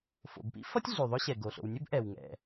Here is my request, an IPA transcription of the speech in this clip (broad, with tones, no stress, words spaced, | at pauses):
fo̰˩bpḭ˥fʌ˥tʲ ɮy˩ðˤɵ˥ɕɛ˩ ɡo˩ɬo̰˩wnʲɵ˥b ʔɛ˩wŋɛ̰˩